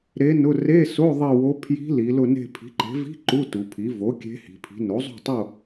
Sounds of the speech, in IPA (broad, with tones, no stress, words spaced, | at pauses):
ɾe˧˥nʊ˧˥˧ re˧˥˧so˧˥˧ ðˤi˦˨wo˧˥ pʰji̤˧˥li˩˧ lʊ˦˨ne̤˦˨ pʰi̤˩˥ǃe̤˩˥vi̤˧˥˧ ǃu˧˥˧tu˩˧pʰi˩˥ vo˩˥ kʲe̤˧˥hi̤˩˧pʰi̤˩˥ no˩˥zˤo̤˦˨tˤo˦˨